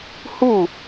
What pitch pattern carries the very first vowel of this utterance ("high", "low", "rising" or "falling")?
falling